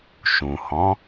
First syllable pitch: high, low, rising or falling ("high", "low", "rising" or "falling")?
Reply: low